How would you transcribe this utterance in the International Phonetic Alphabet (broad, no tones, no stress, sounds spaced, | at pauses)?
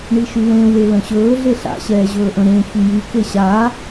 ɳ i ʃ y l ẽ w e l ə̃ ɕ ɵː ɮ e ɬ a̰ ɕ ɛː ʑ ɵː ʔ ə̃ ɾ ẽ ç y j y k e ɕ a